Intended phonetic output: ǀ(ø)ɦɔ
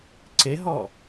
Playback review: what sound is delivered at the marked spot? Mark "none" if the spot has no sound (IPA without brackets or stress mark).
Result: e